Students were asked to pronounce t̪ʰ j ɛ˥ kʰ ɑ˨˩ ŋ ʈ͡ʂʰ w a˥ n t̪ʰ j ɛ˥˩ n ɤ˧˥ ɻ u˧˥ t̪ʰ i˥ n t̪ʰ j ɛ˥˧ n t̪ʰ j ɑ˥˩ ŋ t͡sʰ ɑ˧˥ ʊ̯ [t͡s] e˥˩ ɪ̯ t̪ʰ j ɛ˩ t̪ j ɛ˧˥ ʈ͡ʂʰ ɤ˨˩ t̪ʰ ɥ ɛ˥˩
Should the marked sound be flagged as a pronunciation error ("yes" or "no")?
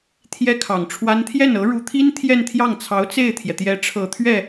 no